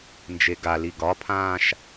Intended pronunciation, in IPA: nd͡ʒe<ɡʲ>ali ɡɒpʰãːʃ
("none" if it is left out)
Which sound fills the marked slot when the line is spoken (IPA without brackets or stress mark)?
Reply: ɡ